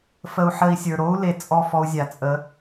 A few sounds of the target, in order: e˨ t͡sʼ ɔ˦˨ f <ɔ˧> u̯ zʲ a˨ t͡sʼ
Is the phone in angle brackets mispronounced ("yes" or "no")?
no